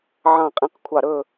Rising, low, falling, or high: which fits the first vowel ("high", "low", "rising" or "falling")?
falling